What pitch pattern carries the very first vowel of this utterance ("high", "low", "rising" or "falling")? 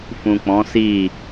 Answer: low